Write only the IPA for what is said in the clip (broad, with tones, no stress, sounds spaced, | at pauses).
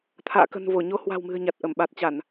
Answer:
t̪ʰ a̰ː˧˨ k ə̤˨˩ n v o˧˩ ɲ o˧ h w a̤˨˩ w m ɨ̤˨˩ ə̯ ɲ a˨˩ t̚ ʔ ə˧˩ m ɓ a˨˩ t̚ t͡ɕ a˧˩˨ n